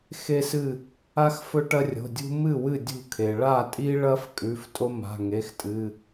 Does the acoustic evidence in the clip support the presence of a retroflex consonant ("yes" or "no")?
yes